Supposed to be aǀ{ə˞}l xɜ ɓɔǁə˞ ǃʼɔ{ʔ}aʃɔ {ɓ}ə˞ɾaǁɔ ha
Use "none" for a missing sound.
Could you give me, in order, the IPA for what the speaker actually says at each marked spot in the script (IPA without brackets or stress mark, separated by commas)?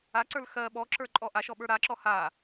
ə˞, ʔ, ɓ